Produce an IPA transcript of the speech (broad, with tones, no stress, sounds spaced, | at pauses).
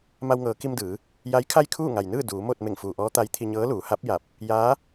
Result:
m a˧ w ŋ ɤː˩˧ k i˧ m d ɯː˩˧ | j a˧˥ j kʰ a˥˨ j kʰ uː˥˨ ŋ a˩ j n ɯː˥˨ d uː˩˧ m oː˥˨ t̚ m e˧˩ ŋ f uː˩ ʔ ɔː˧˥ t̪ a˧˥ j t̪ʰ i˧ ɲ ɤː˧˥ l uː˩˧ h a˧˥ p̚ j a˧˩ p̚ | j aː˧˥